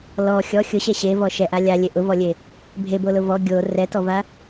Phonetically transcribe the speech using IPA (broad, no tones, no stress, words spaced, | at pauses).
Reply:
lɔ xʲɔ xʲʊɕɛ ɕevɔ ʃɛʔa lʲalʲe ʔʊvɔlʲe | bʱebolʊ vɔ ɡʲo rɛtɔva